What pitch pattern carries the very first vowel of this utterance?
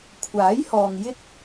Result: rising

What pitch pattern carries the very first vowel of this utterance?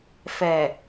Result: low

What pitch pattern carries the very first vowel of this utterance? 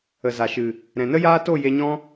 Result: low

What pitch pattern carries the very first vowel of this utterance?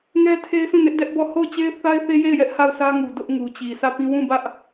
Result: high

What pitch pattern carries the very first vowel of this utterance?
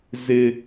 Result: high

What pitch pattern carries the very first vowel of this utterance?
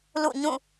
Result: falling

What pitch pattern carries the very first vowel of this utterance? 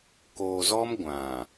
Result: low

